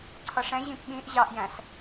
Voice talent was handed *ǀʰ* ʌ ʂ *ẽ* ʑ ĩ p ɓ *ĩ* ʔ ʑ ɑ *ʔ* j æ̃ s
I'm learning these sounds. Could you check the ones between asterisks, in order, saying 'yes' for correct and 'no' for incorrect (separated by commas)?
yes, no, yes, yes